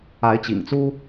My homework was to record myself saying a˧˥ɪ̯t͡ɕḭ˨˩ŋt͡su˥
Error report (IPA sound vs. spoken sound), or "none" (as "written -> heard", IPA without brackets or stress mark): none